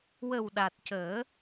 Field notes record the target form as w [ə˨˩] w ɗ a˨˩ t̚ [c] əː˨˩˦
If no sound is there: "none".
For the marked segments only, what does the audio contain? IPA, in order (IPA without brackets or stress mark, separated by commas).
ə˨˩, c